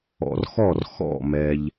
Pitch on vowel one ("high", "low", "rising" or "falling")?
low